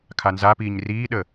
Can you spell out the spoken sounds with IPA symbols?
kʰ a n z a p iː ɲ r iː ɗ ə

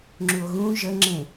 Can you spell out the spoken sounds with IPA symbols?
ŋ͡ǁ u o̯ ɣ ũ ʒ ə ŋ͡ǁ ẽ

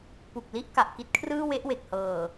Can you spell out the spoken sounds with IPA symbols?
p u˨˩ k̚ l i˦˥ ʔ k a˨˩ ʔ k i˥˩ t̚ kʰ r ɯː˥˩ w e˦˥ ʔ w e˨˩ k̚ h ɤː˨˩

